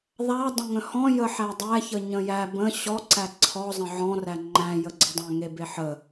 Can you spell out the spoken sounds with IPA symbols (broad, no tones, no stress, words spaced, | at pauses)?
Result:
ðˤa dˤə̃ŋə̃hɔ̃ jəħædˤæçə ɲə̃jæ bə̃ ɕɔǀæ ǀʰɔzˤə̃ ʕɔ̃ræ ŋ͡ǃæ̃jəɡ͡ǀədˤæ̃ ŋebeħə